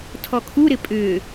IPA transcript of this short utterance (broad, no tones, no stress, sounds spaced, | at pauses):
tʰ ɔ kʰ u ɾ ɪ pʼ ʏː